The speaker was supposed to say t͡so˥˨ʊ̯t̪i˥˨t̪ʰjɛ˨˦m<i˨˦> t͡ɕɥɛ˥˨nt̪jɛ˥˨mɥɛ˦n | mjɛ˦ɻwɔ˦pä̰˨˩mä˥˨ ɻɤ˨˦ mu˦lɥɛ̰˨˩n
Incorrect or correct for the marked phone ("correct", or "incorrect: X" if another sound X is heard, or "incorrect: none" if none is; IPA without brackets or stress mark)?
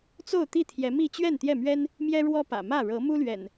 incorrect: i˥˨